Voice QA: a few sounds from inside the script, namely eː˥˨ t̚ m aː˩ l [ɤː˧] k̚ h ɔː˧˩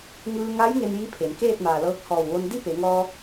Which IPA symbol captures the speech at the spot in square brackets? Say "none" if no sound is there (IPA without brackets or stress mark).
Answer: ɤː˧